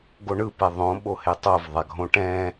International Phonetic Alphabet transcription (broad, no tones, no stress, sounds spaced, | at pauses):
ɡ o ɳ ɯ p ɛ ðˤ õ ɓ o h e tˤ o v ðˤ a ɡʱ õ ʈ ɛ̃